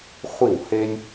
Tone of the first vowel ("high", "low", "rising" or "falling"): falling